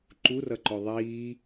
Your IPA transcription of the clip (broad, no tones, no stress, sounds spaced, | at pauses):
ǃ u r ʌ ǃ ɵ ðˤ iː